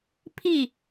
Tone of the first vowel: falling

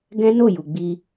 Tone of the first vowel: high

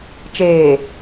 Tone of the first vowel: low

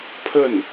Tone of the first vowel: falling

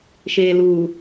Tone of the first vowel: low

